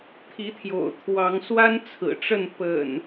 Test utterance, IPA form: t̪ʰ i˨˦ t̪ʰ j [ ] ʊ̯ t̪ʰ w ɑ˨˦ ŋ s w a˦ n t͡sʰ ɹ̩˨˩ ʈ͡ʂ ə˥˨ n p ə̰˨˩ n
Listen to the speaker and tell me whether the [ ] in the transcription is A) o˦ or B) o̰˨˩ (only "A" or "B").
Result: B